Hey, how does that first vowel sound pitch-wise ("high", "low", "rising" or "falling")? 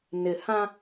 low